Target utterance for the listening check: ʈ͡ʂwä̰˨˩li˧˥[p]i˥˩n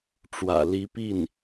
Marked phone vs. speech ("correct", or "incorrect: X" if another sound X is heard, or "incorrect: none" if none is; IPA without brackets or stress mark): correct